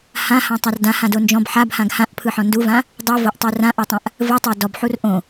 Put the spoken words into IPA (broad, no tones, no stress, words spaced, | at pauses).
hãhãtˤar dãhãdo nd͡ʒɔ̃b ħabhãɡ hãʔpʰɯħɔ̃ nduvã | dˤɯvoʔtˤu rãʔɔtˤãʔ | vɯtˤo dɔbħur ʔõ